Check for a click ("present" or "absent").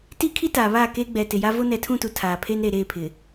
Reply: absent